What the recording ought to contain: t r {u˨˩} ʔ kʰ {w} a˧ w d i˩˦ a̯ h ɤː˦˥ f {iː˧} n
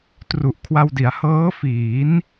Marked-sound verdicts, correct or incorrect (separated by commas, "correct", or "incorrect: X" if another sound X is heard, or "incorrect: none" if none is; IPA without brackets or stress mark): correct, correct, incorrect: iː˩˦